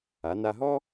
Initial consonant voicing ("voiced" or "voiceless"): voiced